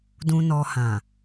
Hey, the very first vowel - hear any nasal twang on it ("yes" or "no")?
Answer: yes